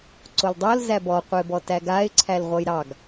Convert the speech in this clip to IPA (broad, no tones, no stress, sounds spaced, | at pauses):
ǀ o l dˤ o l z æ b ɔ qʷ e b ɔ t æ ɡ a ɪ̯ ǀʰ æ l ʁʷ ʌ j ɾ ɑ ɡ